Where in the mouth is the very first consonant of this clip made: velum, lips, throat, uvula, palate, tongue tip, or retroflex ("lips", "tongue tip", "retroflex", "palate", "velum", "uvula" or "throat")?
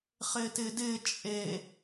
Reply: uvula